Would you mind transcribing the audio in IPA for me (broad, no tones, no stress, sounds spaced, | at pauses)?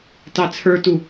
t ɑ t͡sʰ ə˞ t u